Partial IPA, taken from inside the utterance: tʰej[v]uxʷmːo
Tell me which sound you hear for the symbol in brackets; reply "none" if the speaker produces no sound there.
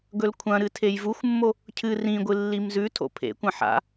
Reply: v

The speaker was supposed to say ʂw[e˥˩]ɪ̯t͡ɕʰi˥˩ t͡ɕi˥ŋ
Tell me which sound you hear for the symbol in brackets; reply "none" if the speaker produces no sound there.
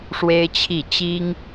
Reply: e˥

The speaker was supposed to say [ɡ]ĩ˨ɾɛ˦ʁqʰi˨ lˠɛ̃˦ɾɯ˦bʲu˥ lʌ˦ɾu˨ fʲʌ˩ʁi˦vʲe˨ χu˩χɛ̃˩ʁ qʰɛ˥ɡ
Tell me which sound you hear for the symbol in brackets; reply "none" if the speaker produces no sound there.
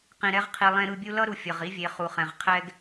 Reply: q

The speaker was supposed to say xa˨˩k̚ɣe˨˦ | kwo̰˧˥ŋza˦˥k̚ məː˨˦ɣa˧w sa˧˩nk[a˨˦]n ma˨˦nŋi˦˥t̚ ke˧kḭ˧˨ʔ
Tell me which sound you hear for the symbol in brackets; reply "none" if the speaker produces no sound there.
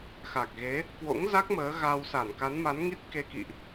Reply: a˨˦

